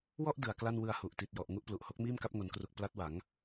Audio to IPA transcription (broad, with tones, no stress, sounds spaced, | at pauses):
w ɔ˥˩ ʔ d ɯ˨˩ a̯ k l a˥˩ n w ɯ˧ a̯ h u˨˩ ʔ t i˨˩ t̚ j ɔ˨˩ ʔ ŋ u˦˥ ʔ p l u˨˩ ʔ h o˦˥ k̚ m iː˥˩ m k a˦˥ p̚ ŋ o˩˦ n k r u˨˩ k̚ p l a˦˥ t̚ w a˩˦ ŋ